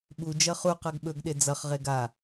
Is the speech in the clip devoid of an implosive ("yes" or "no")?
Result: no